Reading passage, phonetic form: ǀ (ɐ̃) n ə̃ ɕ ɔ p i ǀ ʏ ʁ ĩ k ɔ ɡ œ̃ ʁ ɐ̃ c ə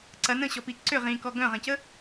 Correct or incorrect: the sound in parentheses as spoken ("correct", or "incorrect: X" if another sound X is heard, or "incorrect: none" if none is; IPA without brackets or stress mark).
incorrect: ɐ